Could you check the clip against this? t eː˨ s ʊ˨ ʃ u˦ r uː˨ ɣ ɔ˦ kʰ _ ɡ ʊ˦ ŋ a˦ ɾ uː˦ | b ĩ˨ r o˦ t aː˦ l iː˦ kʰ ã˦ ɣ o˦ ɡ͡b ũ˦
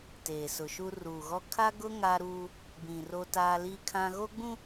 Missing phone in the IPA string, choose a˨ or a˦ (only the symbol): a˦